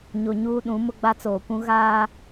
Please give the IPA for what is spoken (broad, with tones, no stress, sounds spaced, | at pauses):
ɲ o˨ ɲ uː˦ ɗ ũ˨˦ m ʊ˦ ɡ͡b a˦ t͡s oː˨ kʷ ũ˦ ɣ aː˦